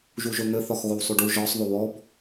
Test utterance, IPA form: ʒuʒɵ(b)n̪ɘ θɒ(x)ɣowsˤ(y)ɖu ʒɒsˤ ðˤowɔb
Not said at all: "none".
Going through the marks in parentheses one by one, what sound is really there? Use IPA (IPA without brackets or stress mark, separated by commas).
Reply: none, x, y